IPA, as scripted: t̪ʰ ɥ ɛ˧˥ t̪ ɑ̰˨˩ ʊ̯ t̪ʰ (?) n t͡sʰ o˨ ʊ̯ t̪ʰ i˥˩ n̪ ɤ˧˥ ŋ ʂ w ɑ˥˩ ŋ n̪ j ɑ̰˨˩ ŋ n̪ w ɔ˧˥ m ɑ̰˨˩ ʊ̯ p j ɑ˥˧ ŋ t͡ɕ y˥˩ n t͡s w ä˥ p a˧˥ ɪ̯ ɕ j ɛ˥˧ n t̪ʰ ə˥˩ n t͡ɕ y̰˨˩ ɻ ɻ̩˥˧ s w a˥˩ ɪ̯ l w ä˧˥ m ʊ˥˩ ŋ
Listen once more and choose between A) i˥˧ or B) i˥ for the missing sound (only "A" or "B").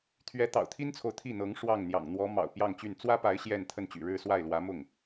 B